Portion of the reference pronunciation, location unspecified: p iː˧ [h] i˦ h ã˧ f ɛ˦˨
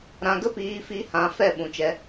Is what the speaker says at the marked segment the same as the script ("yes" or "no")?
no